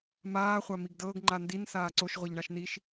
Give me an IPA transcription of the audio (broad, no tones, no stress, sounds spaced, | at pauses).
m aː χʷ a m i ɡ d ɤː ɡ ŋ͡ǃ a n d i n s aː ǀ o ʃ ʁʷ ɛ ʎ ɳ a ʃ n i ʃ